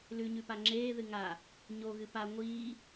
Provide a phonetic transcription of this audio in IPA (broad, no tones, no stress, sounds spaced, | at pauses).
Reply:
l ʉ ɲ ʉ p a ŋ͡ǁ eː ð ɨ ŋ a | ɲ o ɣ ɨ p a ŋʷ iː